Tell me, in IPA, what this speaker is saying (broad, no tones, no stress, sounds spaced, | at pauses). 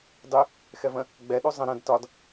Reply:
dˤ y | x ɛ v ə̃ | ɡ͡b ɛ ɗ u zˤ ə̃ ɾ ə̃ d t ɒ d